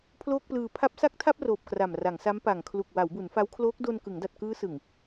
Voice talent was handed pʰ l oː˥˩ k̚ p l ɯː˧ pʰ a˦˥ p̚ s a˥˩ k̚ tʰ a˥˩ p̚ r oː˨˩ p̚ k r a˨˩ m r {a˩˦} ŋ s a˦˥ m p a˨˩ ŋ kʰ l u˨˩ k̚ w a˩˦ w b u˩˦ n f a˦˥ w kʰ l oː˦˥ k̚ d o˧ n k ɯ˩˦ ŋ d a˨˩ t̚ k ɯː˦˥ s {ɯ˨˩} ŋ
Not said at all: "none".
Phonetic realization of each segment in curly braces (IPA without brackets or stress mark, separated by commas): a˩˦, ɯ˨˩